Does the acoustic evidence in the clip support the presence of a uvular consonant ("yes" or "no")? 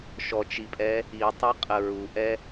yes